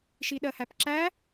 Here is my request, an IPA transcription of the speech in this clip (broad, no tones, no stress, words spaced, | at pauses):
ʃiɗɜhæpǁæ